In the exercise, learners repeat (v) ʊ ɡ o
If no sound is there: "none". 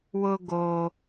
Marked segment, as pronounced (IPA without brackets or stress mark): w